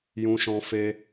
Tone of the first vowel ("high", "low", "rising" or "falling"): high